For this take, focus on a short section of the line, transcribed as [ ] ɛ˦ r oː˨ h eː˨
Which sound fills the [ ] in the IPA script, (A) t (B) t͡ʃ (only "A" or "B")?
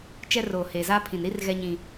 B